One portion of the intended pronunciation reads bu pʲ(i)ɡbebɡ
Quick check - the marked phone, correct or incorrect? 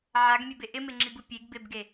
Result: incorrect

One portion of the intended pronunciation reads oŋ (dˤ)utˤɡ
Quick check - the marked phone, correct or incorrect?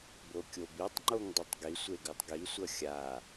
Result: correct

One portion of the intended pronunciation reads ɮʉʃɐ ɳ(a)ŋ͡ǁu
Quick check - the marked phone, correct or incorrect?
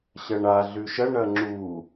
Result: incorrect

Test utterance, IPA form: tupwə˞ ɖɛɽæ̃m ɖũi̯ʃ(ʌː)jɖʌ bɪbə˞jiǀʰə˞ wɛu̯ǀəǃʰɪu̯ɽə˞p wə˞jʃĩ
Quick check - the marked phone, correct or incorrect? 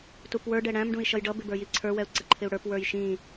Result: incorrect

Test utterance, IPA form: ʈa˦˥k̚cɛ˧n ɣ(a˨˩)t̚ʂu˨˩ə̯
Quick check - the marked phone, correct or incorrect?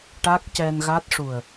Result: incorrect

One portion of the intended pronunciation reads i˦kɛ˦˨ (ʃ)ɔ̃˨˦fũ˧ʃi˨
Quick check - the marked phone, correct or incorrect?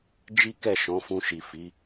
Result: correct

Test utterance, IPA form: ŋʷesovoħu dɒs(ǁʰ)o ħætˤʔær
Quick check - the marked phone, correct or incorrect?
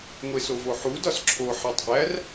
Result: correct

